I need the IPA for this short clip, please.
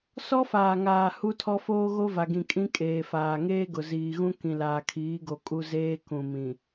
sɔ˦faː˨ŋaː˨ hu˦tʰɔ˦ foː˦ɣo˦va˨ɡĩ˨ kʼĩ˦kʼeː˨faː˨ ŋeː˦ɡʊ˨ziː˨ɣũ˦ kĩ˨laː˨kʰiː˨˦ɡo˨ kʼu˦zeː˦ kũ˨mĩ˨

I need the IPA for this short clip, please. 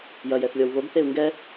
jɐjɛθlʲɔw βoɡθeu̯ ŋɡɛ

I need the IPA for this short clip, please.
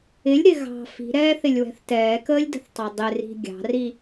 ɪlʲɾɪ ɣɑ̤ fi̤ɾɛːθɪlʲwɛ̤θ tɛːkəːlʲdə̤θtˤɑ dˤɪri̤ ɡʲɑ̤ri

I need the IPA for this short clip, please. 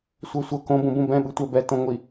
sʷɤsʷɤ kõbũbũ bɛ̃ ɓɯtʷɛbɛ tõŋʷi

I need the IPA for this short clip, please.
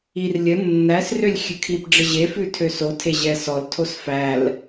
ir lʲə nːæsrølʲ xʲʉkʰipɖ͡ʐə ʑefʉ tʰøsotʰe ʑɛsɔltʰos fæl

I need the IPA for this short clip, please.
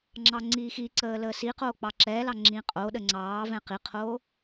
ŋ͡ǁɑŋ͡ǀiːxiǀəː ləːsiqoː k͡pɑǁɛːlɑ ŋ͡ǁĩqʼoɗə ŋ͡ǀɑːvɛ̃ qiqʰoː

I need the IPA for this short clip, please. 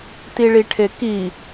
tiɭiʈʰeki

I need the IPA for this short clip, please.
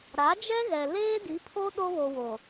ɾa˨˦d͡ʒɛ˦ɣɛ˨ leː˦di˨˦pʰo˦ ɗo˦βo˨wo˨

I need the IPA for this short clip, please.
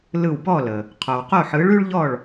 lɯ˧˩wbɔ˥˨lə˩ | qʰo˩wqo˥˨ħɯ˨˥ɭ ʉ˥ɭʎɔ˥˨ɭ

